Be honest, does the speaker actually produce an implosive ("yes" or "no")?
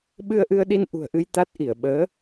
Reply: yes